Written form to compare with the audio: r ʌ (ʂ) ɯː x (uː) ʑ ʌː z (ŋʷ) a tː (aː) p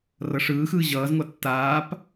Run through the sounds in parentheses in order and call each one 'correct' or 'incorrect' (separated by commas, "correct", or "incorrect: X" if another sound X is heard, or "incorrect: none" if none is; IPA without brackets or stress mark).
correct, incorrect: ɯː, correct, correct